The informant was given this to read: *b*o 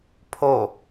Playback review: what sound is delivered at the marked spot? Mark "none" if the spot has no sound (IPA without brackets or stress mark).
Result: pʰ